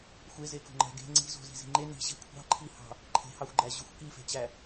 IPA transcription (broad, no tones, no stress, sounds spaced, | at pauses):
xʷ e z e k o̤ ŋ͡ǃ æ̤ ɡ e̤ ŋ͡ǀ i̤ z o̤ z i̤ z i̤ ŋ͡ǃ e n i̤ ɕ e̤ kʷʰ ɑ̤ ǃʰ i h ɑ̤ | ǃʰ e̤ h ɑ xʷ ɡ͡ǃ æ ʑ ʉ xʷ k i f e̤ t͡ɕ æ